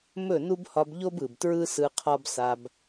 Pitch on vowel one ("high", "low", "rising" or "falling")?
falling